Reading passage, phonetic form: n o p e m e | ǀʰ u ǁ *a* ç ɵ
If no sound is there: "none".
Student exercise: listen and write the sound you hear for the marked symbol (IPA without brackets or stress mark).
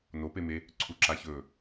a